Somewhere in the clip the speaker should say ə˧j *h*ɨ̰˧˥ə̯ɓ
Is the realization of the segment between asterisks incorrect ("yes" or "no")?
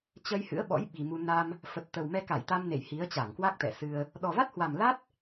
no